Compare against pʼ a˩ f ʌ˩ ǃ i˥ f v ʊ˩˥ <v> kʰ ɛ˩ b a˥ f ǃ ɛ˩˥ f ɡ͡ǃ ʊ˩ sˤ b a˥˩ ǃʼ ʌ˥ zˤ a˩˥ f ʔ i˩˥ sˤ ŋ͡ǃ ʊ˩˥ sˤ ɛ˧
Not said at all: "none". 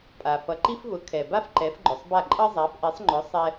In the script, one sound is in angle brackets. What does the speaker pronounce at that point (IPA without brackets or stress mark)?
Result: none